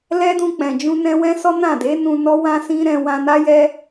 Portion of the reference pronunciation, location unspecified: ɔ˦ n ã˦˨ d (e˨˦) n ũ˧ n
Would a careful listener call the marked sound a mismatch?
no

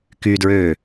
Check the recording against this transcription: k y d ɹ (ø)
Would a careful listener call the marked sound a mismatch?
no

